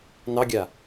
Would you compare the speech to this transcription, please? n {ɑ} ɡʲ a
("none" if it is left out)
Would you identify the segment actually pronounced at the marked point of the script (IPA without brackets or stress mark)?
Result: ɑ